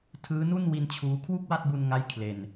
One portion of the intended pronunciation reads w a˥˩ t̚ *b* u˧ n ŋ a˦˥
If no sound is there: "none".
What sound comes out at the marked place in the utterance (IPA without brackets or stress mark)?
b